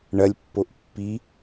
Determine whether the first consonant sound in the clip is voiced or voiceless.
voiced